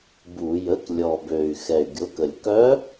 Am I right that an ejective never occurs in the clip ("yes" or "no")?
yes